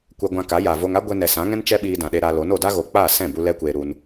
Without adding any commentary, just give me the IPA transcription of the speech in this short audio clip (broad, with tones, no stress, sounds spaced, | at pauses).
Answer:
kʷ ɛ˧ ɡʷ ã˧ k a˨˦ j a˨ v o˧ ŋ a˦ ɡʷ ɛ˧ n ɛ˨ s ã˨˦ ŋ ɛ̃˦ n t͡ʃ ɛ˦ ɓ iː˧ d ã˨ ɗ e˧ ɾ a˧ l o˨˦ n o˨ d a˦ ɣ o˨ k͡p aː˦˨ s ɛ̃˦˨ b u˦ l ɛ˦ kʷ eː˧ ɾ u˧ n